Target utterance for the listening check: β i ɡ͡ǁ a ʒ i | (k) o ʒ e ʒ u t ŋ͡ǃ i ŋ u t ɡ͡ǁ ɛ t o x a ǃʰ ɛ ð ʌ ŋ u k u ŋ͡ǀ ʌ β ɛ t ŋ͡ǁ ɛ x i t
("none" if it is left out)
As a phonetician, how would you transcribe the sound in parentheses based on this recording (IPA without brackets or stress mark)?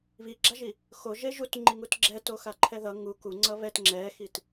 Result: x